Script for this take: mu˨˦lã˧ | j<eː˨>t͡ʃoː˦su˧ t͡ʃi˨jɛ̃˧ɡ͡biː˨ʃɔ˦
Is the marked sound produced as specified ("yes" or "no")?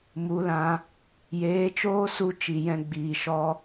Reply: no